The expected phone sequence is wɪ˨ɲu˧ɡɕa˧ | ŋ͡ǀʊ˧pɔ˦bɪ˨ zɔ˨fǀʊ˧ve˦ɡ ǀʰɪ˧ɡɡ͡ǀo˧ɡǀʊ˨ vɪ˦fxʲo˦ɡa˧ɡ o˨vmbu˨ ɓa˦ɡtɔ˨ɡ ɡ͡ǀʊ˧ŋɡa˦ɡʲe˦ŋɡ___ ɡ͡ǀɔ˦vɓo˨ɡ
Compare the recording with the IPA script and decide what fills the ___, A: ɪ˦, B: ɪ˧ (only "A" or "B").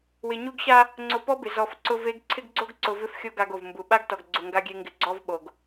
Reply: B